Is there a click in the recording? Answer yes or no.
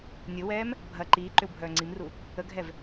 yes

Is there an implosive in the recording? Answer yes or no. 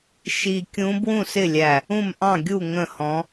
no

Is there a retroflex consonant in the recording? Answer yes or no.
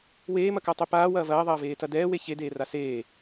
no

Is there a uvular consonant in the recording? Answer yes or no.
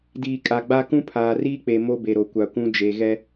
no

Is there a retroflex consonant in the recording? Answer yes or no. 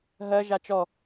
no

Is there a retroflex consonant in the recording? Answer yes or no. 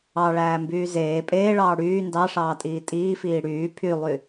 yes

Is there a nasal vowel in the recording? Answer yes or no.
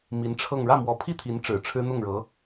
no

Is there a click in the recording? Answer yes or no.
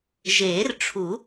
no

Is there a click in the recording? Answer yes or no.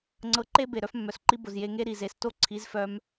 yes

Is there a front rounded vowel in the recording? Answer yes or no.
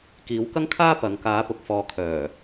yes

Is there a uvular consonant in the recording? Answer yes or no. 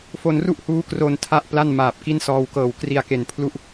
no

